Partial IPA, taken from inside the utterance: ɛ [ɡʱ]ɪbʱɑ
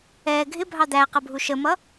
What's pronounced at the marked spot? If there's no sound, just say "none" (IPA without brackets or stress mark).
ɡʱ